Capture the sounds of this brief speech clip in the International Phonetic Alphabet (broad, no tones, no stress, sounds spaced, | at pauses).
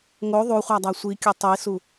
ŋ o ðˤ u χʷ æ dˤ æ sʷ i kʲ o tˤ i s u